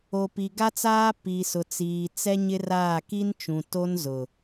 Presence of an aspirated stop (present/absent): absent